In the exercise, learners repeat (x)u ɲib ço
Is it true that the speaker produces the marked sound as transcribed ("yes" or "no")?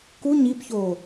no